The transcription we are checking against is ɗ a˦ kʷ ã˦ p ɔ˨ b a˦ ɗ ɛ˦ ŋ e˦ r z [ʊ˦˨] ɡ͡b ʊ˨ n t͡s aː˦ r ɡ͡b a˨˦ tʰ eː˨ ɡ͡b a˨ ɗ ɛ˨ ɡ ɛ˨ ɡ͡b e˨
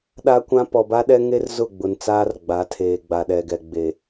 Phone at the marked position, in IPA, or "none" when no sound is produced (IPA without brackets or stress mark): ʊ˦˨